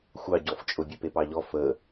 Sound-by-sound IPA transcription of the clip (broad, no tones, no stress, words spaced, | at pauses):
xʷɑɟɔft͡ʃʼʊ bʲepepɑʎɔ fə